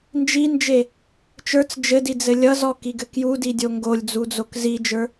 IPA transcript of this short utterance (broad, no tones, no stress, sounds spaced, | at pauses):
n d͡ʒ i n d͡ʒ e | t͡ʃ ə˞ t͡s d͡ʒ ɘ d i d͡z ɘ lʲ ʌ z ɔ k i ɡ ɘ k j u d i dʲ o ŋ ɡ o lʲ d͡z u d͡z o k z i d͡ʒ ə˞